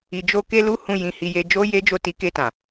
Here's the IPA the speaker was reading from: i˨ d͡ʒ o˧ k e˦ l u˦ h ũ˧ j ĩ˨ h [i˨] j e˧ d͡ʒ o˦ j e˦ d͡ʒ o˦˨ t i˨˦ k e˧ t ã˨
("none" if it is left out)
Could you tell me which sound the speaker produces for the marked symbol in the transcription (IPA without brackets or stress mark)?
i˨